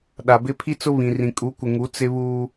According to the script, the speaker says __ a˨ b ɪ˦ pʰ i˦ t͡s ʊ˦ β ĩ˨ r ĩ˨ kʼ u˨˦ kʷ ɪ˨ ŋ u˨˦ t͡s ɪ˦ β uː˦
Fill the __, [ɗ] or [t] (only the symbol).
ɗ